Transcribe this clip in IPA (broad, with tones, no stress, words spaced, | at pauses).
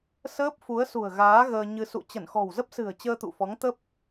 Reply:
səː˦˥p̚fu˨˦ə̯sṳ˨˩ə̯ɣaː˨˦ ɣəː˧ɲɨ˧ sṵ˧˨ t͡ɕə˧˩nxɔ̤˨˩wzə˦˥p̚sɨ̤˨˩ə̯ t͡ɕəː˧t̪ṵ˧˨fɔ˨˦ŋt̪ə˦˥p̚